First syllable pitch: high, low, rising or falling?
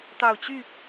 low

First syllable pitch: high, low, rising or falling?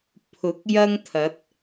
rising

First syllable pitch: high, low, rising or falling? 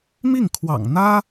falling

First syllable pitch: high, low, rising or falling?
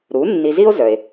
rising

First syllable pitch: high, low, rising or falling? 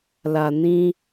low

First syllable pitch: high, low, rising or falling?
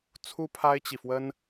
high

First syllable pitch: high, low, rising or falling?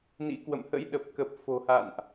rising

